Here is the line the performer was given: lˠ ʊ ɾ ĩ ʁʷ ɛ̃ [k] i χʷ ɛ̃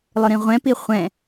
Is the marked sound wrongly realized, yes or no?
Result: yes